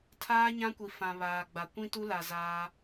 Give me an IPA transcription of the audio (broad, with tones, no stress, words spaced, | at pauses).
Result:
tʰaː˦ɲã˦kʷi˨fã˨ βaː˨ɡ͡ba˨ kʷĩ˦tu˦la˨ zaː˦